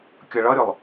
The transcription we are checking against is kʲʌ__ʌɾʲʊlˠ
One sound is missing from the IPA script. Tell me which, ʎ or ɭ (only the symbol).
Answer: ɭ